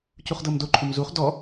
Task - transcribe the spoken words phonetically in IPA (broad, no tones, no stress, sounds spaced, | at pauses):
c u χ d ɤ m d o ǃʰ u m z u χ d ɔ